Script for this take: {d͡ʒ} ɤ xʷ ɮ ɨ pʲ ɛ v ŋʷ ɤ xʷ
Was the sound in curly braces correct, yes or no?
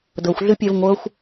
no